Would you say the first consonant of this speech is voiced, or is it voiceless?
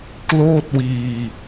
voiceless